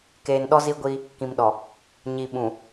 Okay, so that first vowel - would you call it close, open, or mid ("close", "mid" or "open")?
mid